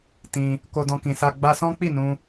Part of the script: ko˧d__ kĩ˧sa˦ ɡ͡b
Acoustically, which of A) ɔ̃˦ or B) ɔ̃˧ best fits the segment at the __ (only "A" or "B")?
B